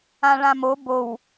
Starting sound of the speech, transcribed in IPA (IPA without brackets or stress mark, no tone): ã